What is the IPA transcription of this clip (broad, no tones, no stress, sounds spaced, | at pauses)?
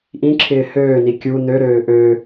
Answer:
ʔ ĩ ǁʰ ɪː h øː n i kʲ u n ø ɾ øː ʔ ø